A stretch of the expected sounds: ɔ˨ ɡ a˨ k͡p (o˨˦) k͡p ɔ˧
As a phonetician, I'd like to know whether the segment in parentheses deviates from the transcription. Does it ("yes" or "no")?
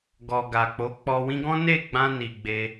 no